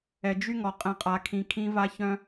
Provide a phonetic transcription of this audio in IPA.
ɛ˨ d͡ʒ y˦ ŋ ɔ˨ qʼ ɛ̃˨ qʼ a˨ kʰ ĩ˨ kʰ ĩ˦ v a˦ ç œ̃˦

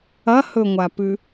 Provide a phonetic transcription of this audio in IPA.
ɐ h ɵ ŋʷ a p ʉ

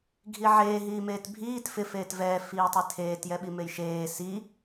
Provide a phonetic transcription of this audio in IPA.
ɡʱ i ʕ eː ɦ iː m eː t bʱ iː t f ɪ f eː t v ɛː f iː tˤ i tʰ eː t j ɛ ɓ i m e j ʃ eː s i

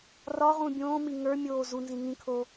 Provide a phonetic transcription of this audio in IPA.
r ɒ ʁ ũ bʲ õː m i ŋ ə˞ mʲ oː z u n z ĩ ŋ ĩ kʰ oː

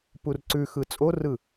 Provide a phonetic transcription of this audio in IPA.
p u r ǀ ʉ x ɯ t͡sʼ o r ɯ

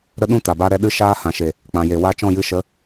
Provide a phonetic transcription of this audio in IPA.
ɾ ə˦ ɗ ũ˦ t a˨ b a˦ ɾ ɛ˦ ɗ ɨ˦ ʃ aː˦ h ã˨ ʃ e˨ | k͡p ã˨ j e˨ w a˦ t͡ʃ ɔ̃˦˨ j ɨ˧ ʃ ə˨˦

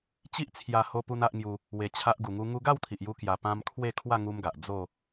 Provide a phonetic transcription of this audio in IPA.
t͡ɕ i˦ ʔ t͡sʰ j a˧ h o˦ p u˦ n a˦ ʔ ŋ j u˧ | w e˧ t͡ɕʰ a˦ ʔ ɡ u˧ ŋ u˦ ŋ u˧ ɡ a˥˧ w t̪ʰ i˨ ʔ j u˧ k j a˧ p ã˦ m kʰ w e˥˧ kʰ w a˥˧ ŋ u˦ m ɡ a˨ ʔ d͡z o˥˧

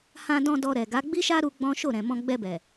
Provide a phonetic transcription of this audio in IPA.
h ã˧ d ɔ̃˧ d ɔ˧ ɾ ɛ˨ ɡ a˨˦ ɡ͡b i˦ ʃ a˦ ɾ u˧ ɡ͡b ɔ̃˦ ʃ o˦˨ ɾ ɛ̃˨ m ɔ̃˧ ɡ͡b ɛ˧ b ɛ˨

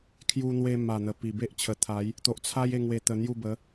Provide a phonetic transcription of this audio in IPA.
kʰ j u˧ n̪ w e˧ m a˨˩ n̪ ə˨˩ p i˨˩ b e˦ ʔ t͡ɕʰ ə˨˩ t̪ʰ a˨˦ j | t̪ o˨ ʔ t͡sʰ a˦ j e˥˧ ŋ w e˧ t̪ ə˧ n̪ j u˥˧ b ə˨˦

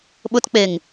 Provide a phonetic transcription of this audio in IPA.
ɓ ʊ t k͡p e ŋ

